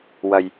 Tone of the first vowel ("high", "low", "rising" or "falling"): low